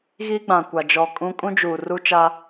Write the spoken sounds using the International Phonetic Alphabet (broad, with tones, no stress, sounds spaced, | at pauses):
ɣ iː˦ ɡ͡b ã˨ kʷ a˨ d͡ʒ ɔ˨ kʼ ũ˦ kʼ ũ˦ d͡ʒ uː˨ r u˦ t͡ʃ a˦